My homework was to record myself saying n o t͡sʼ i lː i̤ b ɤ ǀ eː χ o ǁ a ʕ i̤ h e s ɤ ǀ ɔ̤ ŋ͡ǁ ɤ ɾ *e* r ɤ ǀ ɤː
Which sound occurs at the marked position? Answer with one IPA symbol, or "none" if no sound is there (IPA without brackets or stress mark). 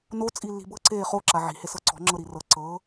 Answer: i